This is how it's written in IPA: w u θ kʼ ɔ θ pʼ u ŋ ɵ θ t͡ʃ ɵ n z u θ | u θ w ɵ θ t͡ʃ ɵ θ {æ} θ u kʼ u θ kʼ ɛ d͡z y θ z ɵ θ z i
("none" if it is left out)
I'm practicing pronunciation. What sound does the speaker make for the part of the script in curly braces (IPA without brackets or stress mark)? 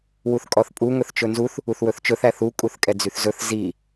æ